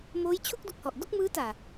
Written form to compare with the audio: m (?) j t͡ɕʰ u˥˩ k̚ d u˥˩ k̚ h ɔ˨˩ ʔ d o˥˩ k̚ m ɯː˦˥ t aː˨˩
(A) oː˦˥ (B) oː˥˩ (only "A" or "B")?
A